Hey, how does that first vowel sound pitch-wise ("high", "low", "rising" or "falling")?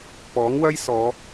rising